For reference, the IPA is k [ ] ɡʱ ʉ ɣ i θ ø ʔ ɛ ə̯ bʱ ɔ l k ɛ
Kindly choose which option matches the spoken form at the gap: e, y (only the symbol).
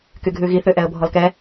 y